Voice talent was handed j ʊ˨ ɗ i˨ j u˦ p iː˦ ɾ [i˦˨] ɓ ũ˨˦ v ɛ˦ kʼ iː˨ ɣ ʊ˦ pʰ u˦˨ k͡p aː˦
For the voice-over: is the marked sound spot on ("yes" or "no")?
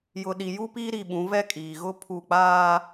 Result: yes